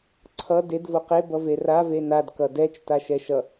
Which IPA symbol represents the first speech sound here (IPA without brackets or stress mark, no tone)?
ǀʰ